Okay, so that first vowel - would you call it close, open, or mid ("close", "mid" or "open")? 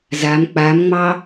open